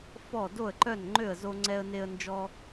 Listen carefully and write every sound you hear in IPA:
f ɔ˥˩ d o˥˩ ə̯ ǃ œ˥˩ n ŋ͡ǃ ø˥˩ ə̯ z o˥ ŋ͡ǀ ɛ˥ ə̯ n e˥ ə̯ n d͡ʒ ɔ˥

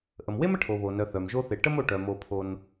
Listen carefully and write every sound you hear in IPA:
ʔ ə˩ m w e˥ m ə˦ ʈʰ o˩ β o˩ n œ˩ θ œ˩ m ʒ o˥ θ e˨ ʈ ə˥ m o˨ ʈ œ˩ m o˨ pʰ o˨ n

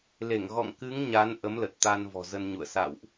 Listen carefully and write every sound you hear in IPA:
l e˧˩ ŋ ɣ ɔ̰˧˨ ŋ k ɨ˨˦ ŋ ɲ a˨˦ n ʔ ə˨˦ m l ə˨˩ t̚ t̪ a˧ n v ɔ̤˨˩ z ə˧ n ɲ ṵ˧˨ ə̯ s a̰˧˨ w ʔ

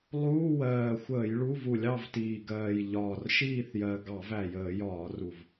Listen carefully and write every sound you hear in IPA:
lˠ uː˧˥˧ w ɜː˨˩ xʷ əː˧˩˧ j ɭ u˧˥˧ v u˧˩˧ lʲ ɑ˦˨ v t iː˨˩ ɡ ɜː˨˩ j ʎ ɒː˨˩ r ʃ iː˦˨ θ j ɜ˨˩ ɡ ɑ˧˩˧ v æ˨˩ j əː˧˩˧ j ɒː˧˩˧ r u˨˩ v

